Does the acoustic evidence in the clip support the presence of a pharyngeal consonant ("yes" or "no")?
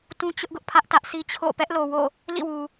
no